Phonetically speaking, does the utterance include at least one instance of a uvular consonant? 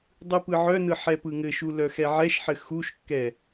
no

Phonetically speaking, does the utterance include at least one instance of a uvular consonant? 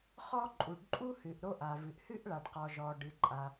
yes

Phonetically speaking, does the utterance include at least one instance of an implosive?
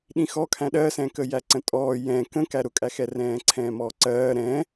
yes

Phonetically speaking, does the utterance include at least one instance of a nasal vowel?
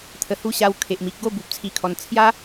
no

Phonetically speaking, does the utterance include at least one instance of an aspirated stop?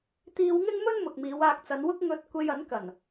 no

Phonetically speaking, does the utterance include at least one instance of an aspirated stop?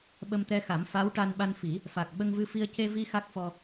no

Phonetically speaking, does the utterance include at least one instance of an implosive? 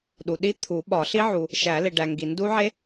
yes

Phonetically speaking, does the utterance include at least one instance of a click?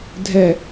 no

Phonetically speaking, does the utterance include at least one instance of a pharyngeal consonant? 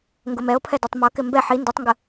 yes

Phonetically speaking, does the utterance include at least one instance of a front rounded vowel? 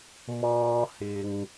no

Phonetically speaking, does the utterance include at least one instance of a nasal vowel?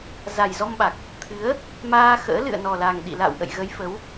no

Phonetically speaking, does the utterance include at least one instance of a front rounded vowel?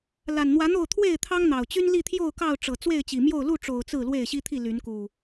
yes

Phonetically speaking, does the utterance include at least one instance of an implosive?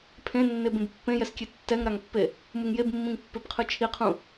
no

